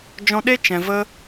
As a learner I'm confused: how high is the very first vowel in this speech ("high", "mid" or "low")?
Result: mid